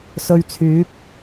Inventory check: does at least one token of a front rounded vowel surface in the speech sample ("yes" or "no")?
yes